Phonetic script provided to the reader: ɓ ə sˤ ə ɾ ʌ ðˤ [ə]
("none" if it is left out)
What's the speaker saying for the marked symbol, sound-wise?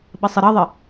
ə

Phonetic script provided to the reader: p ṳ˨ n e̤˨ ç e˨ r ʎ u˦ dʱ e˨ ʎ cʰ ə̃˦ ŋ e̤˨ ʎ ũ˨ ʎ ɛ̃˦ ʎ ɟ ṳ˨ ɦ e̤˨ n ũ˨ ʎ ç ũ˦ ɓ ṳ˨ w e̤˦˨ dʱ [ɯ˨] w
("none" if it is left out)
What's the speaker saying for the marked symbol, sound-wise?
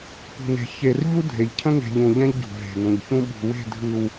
ɯ˨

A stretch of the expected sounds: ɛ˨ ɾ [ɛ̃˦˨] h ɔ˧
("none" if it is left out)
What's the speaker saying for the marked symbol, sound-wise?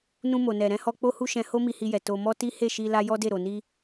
ɛ̃˧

